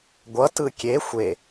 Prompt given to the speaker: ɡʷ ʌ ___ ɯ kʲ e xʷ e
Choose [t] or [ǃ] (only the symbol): t